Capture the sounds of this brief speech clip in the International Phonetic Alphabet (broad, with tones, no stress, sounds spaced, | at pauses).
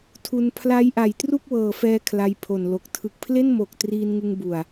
tʰ u˧ n pʰ l a˦˥ j ʔ a˨˩ j t r u˥˩ k̚ w ɤː˨˩ f ɛː˧ kʰ l a˧ j pʰ o˨˩ n l o˨˩ k̚ tʰ ɯ˨˩ k̚ pʰ l e˥˩ n m o˨˩ k̚ t r iː˧ n ŋ ɯ˧ ŋ b u˨˩ a̯